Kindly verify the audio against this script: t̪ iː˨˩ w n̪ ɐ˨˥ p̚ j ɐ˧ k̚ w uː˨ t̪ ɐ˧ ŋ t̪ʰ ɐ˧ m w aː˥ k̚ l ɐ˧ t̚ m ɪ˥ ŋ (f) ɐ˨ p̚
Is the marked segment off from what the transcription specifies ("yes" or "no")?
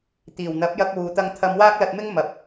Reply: yes